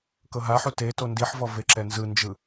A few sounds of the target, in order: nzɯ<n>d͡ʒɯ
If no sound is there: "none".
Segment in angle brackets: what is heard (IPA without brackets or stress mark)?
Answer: n